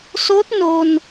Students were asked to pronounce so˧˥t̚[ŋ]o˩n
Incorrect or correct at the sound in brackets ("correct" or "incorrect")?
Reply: incorrect